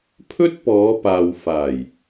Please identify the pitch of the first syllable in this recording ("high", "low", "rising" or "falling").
high